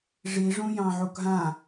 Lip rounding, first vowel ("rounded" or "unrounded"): unrounded